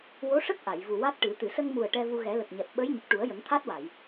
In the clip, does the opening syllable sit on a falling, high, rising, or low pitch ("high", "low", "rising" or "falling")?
rising